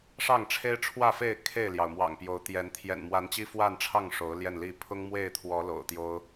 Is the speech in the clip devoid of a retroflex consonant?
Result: no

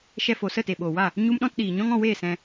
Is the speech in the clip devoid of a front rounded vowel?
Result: yes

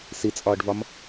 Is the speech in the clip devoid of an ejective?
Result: no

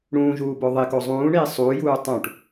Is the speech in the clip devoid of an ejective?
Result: yes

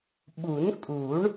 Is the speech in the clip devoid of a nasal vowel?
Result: yes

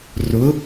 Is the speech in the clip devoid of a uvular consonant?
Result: yes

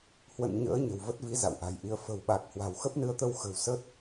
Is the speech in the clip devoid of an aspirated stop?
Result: yes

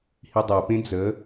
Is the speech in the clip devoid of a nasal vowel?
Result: no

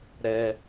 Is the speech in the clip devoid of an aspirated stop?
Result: yes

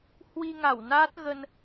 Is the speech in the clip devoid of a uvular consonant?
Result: yes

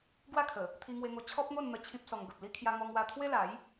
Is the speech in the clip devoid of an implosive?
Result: yes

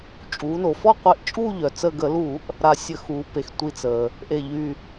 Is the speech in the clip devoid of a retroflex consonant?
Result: yes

